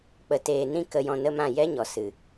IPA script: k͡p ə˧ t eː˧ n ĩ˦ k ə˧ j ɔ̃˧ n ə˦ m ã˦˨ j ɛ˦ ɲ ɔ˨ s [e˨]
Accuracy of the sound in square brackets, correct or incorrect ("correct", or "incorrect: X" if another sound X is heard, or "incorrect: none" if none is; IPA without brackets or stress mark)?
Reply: incorrect: ɨ˨